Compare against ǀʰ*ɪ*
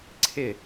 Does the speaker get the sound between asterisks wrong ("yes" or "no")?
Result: no